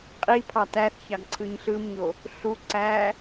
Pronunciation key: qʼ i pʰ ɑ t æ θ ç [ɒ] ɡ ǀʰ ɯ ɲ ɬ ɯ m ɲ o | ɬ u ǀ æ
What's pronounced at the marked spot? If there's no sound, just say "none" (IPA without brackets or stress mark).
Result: ɑ